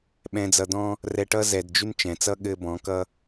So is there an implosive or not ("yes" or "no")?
yes